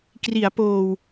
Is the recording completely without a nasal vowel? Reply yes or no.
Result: yes